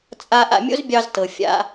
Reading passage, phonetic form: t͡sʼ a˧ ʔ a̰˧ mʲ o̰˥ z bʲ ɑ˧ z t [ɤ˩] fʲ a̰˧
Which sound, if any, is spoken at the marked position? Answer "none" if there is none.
ɤ˩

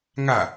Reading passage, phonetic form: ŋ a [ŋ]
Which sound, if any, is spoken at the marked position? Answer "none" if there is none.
none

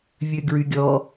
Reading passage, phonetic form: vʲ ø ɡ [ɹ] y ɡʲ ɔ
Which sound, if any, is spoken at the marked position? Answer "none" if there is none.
ɹ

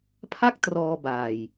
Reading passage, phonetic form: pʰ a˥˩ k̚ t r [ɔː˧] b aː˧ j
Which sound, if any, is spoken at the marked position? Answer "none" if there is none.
ɔː˧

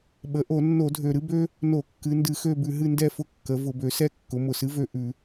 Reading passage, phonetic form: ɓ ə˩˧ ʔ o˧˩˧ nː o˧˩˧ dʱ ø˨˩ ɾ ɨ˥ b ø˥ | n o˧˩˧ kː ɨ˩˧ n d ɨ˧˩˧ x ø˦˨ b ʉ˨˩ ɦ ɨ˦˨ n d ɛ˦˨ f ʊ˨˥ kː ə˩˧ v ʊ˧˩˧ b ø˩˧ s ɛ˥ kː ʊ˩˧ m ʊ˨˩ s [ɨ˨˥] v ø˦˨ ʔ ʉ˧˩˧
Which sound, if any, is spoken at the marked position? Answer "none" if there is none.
ɨ˨˥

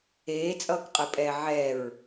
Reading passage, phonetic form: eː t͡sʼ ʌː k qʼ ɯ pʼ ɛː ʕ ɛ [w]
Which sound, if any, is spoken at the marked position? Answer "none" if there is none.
ɹ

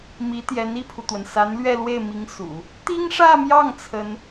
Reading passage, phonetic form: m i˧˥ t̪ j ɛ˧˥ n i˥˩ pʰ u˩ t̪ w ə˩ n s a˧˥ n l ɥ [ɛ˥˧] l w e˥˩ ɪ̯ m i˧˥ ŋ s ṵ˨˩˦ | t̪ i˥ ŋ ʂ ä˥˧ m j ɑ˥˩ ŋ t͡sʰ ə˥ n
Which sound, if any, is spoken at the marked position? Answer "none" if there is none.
ɛ˥˧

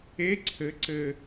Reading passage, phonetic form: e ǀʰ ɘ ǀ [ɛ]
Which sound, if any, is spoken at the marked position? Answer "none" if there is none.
ɘ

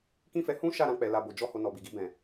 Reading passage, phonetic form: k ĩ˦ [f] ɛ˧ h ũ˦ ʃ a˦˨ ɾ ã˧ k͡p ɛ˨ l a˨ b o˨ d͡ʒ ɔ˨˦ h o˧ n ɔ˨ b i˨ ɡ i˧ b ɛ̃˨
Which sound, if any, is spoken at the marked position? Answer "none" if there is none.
f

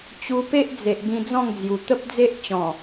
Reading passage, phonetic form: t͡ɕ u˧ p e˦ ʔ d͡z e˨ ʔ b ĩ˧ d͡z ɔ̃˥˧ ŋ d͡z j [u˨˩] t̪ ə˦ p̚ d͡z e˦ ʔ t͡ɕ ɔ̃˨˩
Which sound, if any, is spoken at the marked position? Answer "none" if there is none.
u˨˩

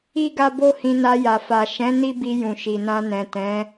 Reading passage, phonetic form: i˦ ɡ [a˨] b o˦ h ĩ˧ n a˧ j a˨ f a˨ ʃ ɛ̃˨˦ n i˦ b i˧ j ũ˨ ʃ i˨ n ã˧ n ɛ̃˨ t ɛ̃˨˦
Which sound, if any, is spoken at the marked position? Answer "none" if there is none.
a˦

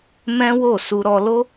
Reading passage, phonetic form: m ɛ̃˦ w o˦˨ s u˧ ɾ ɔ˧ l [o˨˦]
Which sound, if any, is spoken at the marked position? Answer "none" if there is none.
o˦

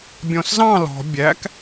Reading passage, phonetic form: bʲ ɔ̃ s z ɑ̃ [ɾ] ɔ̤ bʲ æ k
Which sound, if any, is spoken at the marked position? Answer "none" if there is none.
l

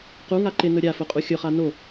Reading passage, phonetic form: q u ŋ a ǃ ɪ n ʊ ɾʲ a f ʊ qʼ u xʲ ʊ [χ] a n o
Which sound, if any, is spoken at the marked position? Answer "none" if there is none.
χ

